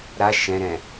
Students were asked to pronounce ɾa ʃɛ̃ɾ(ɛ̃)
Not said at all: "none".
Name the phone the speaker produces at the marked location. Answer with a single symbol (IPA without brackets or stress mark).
ɛ̃